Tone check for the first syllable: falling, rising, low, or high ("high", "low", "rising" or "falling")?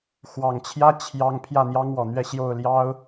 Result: low